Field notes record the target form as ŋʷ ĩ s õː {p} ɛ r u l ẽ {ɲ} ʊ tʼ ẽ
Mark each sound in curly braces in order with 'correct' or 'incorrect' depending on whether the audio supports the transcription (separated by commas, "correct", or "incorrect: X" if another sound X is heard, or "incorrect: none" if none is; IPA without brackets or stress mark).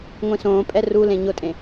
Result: incorrect: pʼ, correct